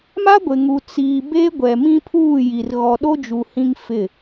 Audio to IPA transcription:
m a˦ ɡʷ ɪ˨ ŋ u˨ t͡s iː˨ b e˦ ɡʷ ɛ˨ m ĩ˦ pʰ uː˦˨ j i˨ r ɣ ɔ˨ ɗ o˦ d͡ʒ u˨ h ĩ˦ ŋ f ɪ˦˨

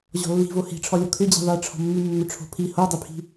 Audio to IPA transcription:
ʑ ɔ̤ lː i̤ v o h i̤ ʈ͡ʂʰ ɔ lʲ o kʰ ʏ d͡ʑ i̤ ðˤ i ʈ͡ʂʰ ɔ̤ mː ʉ mː ʏ ʈ͡ʂʰ o̤ pʰ i h o dˤ ʏ pʰ i̤

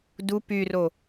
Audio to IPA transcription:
d u p y r o

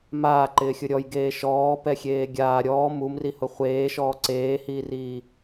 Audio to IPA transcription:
m aː ǃ ɪː xʲ ʊ ɾʲ ɔ j ɡ eː ʃ ɔː p ɛ xʲ eː ɡʲ aː ɾʲ ɔː m u m r i h ʊ χʷ eː ʃ ɔː ǀ eː h iː r iː

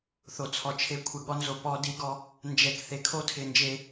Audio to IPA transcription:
θ o˨ t͡sʰ ɔ˨ t͡ʃʰ e˦ kʷʰ ɪ˨ ɠ ɔ˦ n z o˨ p ɔ˦ d i˦ ɡ ɔ˦ | n d͡ʒ ɛ˨ k θ e˨ kʰ o˦ tʰ ɪ˨ n d͡ʒ e˦

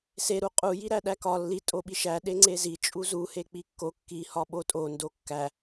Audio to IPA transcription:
s e ɾ u qʼ u j i ɾ æ ɗ æ k ɒ lː i tʼ o ɓ i ʃ æ ɗ e ŋ͡ǀ e z i t͡ʃʼ u z u h e k͡p i kː o kː i h ɒ ɓ o tʼ o n d o kː æ

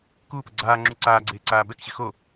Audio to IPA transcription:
k uː p ə ɡ͡ǀ aː ŋ͡ǁ u ǀ aː ɡ͡ǀ eː ǀ aː b ɛ k ɕ ɪ x o

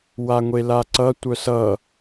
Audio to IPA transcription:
w a ŋʷ e l a ǀ ʌ tʷ œ s ʌ

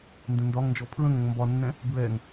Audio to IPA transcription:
n d ə̃ n d ɒ ŋ n d͡ʒ ɔ pʰ ɹ ə̃ ŋ ə̃ ŋ m b ɒ nː ɛ̃ | b ɹ ɛ ŋ

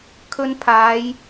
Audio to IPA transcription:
kʰ ɵ˧ n pʰ aː˨˧ j

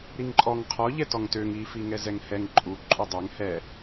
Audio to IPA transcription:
ɾ i ŋ ǃʼ ɔ ŋ qʰ ɔ ʎ ɛ t ɔ ŋ t ø ŋ i f i ŋ ɛ z ɛ ŋ h ɛ ŋ ǃʼ u ǃʼ u dˤ œ ŋ h ɛ

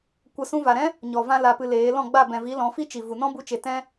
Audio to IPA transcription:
kʷ ə˧ s ũ˧ v a˨ ɾ ɛ̃˦ | ɲ ɔ˨ v ã˧ l a˨ p ɨ˧ l eː˨˦ l ɔ̃˦˨ ɡ͡b a˦˨ b ɛ̃˨ v i˨˦ l ɔ̃˨˦ f i˦ t͡ʃ i˨ v u˨ n ɔ̃˦ b u˧ t͡ʃ e˨ t ɛ̃˦

